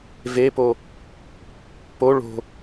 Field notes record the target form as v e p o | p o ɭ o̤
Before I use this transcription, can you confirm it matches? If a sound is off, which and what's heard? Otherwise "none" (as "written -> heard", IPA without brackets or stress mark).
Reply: none